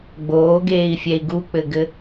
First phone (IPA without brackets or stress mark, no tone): ɡ͡b